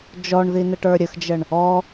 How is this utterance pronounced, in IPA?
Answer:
d͡ʒ ɔ ɳ ð i n ə ʈ ə˞ ɾʲ ə x d͡ʒ ə ɳ | ɔ

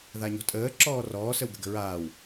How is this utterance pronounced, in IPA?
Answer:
ð a ɲ ɔ̤ tʼ əː ǁ ɔː r ɔː s ə w ɡ ə̤ ɡ ə̤ ɹ aː w

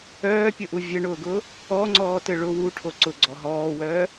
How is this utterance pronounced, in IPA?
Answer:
œː pʲ ʊ ʔ u vʲ ɘ ɳ ʊː ɡ ʊː | ɔ ŋ͡ǀ ɔː t ɘ ɭ ʊ w u ʈʰ o ǀ ʊ ɡ͡ǀ ɔ ɦ ɔː w œː

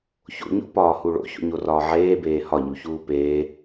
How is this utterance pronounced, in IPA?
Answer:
ç o̰ ɲ o̰ p ɒː h u ɭ o̰ ç o̰ ɲ o r ɒː ʕ eː b eː h ɒ ɲ u ç uː p eː

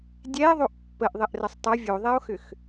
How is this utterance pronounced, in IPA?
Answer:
dʲ ɛ e̯ ðˤ o ʔ pː ə ʔ ðˤ ɘ ʔ r ə sˤ tˤ ə vʲ o ðˤ ɛ o̯ x ʏ x

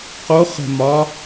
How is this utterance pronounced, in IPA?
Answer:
q o χ ə̤ m ɒ

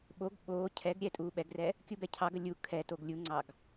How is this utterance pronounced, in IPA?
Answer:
ɓ o ɡ ɓ oː cʰ ɛ ɡ ɾʲ ɛ tʼ uː ɓ ɛ ɡ r ɛ | kʲ u b ɛ cʰ ɑ ɡ ə lʲ u kʰ ɛ t o ɡ lʲ u ŋ͡ǀ ɑ ɡ

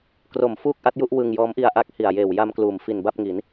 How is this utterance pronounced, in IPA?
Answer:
k r o˨˩ m f uː˥˩ k̚ ʔ a˦˥ t̚ j u˥˩ ʔ w ɯ˧ ŋ j ɔː˦˥ m ʔ i˧ a̯ ʔ a˦˥ k̚ h i˨˩ a̯ j eː˨˩ w j a˧ m k l uː˩˦ m f i˨˩ n b a˥˩ p̚ ŋ i˩˦ n

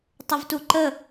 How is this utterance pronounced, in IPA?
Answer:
tˤ ə v t u ǃ ə

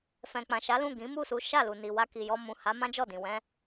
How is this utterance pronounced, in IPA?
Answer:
f ɛ̃˨ k͡p ã˨ ʃ a˨˦ l ũ˦˨ ɡ ĩ˨˦ m u˦˨ s u˨˦ ʃ a˦˨ l u˨ n i˨ w a˧ k i˨ j ɔ˧ m ũ˨ h a˨˦ m ã˦ d͡ʒ ɔ˦˨ d ĩ˨ w ɛ̃˧

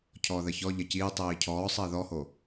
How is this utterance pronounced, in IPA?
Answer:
cʰ ɔː ð ɜ ç ɔ ʎ ɐ c iː tˤ iː cʰ ɔː sˤ ɘː ð ɔ h o

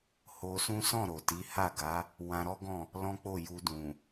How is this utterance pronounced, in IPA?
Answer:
h o˧ s ũ˦ s ɔ̃˦˨ ɾ o˨ t i˨˦ h a˦˨ ɡ a˨˦ | w ã˧ ɾ ɔ˦ ɡ ɔ̃˦˨ | l ɔ̃˦ k͡p o˦˨ j u˧ d ũ˨

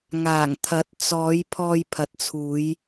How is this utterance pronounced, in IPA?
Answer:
ŋ aː˨˩ ŋ t̪ʰ ɐ˨˥ t̚ t͡s ɔː˨˧ j pʰ ɔː˧ j pʰ ɐ˨ t̚ t͡sʰ uː˨˧ j

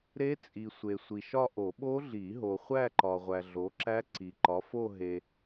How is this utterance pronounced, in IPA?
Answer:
ɾ e˦˥ t͡sʼ i˨ sʷ e˨ sʷ i˨ ʃ ɒ˥˧ ʔ o˨˩˦ ɓ o˦˥ ɮ i˨˩˦ ɦ o˨ χʷ æ˥˧ ǃ ɒ˨ ʁʷ æ˨ ɮ o˨˥ ǁ æ˦˥ ǀ i˨ ǃ ɒ˨˥ f o˥˧ ɦ e˨

